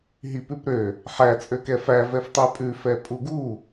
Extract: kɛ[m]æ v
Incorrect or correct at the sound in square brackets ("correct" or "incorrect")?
incorrect